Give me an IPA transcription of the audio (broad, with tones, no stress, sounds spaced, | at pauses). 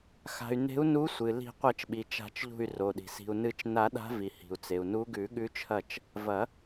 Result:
x a̤˩ y̯ n e̤˨˦ u̯ n u˨˦ sʷ ɨ˩ l i̤˨˩˦ qʷ ɐ˨˩˦ t͡ʃ ɓ i˩ t͡ʃ a̤˨˩˦ t͡ʃ ʎ ṳ˧˩ y̯ r o˩ ɗ i̤˩ s i̤˩ u̯ n ɨ˨˩˦ t͡ʃ n a˨˩˦ ɗ a̤˨˦ v i˩ h i̤˩ u̯ t͡s e˩ u̯ n u˨˦ ɡ ʉ˨˩˦ ɠ ʉ˨˦ t͡ʃʰ ɐ˧˩ t͡ʃ | v ɐ˨˩˦